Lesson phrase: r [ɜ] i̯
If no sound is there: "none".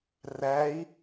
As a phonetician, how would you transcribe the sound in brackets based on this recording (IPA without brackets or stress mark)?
æ